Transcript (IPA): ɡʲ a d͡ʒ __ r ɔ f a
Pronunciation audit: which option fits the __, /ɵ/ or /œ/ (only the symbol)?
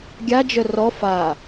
œ